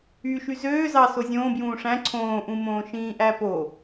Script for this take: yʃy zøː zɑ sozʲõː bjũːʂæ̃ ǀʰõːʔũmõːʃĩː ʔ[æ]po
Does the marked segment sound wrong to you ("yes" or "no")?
no